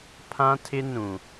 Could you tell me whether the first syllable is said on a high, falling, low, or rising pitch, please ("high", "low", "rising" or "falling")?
high